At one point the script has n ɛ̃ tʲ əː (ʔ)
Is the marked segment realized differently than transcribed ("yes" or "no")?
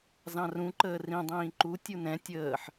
yes